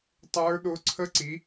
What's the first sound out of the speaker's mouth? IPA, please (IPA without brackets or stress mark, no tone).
tˤ